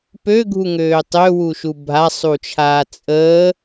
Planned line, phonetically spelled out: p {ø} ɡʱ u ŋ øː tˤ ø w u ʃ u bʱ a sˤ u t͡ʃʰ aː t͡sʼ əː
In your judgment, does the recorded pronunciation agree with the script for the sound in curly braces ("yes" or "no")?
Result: yes